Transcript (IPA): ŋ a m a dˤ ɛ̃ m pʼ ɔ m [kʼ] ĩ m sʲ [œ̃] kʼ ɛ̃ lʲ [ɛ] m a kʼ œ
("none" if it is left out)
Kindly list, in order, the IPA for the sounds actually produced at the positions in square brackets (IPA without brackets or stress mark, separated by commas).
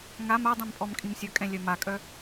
kʼ, œ, œ